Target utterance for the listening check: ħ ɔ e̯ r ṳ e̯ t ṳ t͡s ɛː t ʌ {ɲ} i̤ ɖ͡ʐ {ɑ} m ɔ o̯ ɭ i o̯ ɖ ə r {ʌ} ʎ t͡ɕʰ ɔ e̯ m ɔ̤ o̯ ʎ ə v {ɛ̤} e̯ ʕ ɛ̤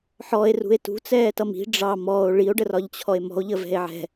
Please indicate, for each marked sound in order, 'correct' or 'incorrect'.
incorrect: m, correct, incorrect: ɒ, correct

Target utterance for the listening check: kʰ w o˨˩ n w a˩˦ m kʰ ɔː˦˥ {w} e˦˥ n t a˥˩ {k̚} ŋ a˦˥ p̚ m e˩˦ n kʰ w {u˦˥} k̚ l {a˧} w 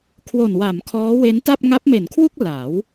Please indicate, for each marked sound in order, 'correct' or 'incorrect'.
correct, incorrect: p̚, incorrect: u˥˩, incorrect: a˩˦

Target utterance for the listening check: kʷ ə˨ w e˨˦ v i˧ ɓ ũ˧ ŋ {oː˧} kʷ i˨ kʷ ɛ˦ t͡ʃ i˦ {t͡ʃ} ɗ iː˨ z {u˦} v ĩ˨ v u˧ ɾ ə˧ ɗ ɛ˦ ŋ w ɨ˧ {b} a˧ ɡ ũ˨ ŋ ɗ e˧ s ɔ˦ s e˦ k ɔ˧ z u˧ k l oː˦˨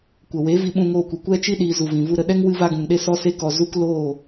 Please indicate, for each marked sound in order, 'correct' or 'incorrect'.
correct, incorrect: none, incorrect: u˨, incorrect: v

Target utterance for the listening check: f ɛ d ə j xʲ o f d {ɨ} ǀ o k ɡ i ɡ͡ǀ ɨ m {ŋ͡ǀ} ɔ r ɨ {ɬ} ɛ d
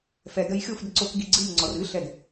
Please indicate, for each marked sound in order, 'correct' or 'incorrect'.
incorrect: ə, correct, correct

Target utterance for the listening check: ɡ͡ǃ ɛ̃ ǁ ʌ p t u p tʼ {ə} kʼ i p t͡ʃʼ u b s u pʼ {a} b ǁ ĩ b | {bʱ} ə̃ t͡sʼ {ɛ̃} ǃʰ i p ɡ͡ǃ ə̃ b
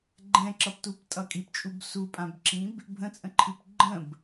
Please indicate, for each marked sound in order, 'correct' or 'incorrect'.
incorrect: ʌ, incorrect: ã, correct, incorrect: ə̃

